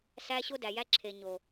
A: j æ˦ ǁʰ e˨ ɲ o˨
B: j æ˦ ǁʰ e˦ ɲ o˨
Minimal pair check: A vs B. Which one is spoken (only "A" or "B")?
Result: A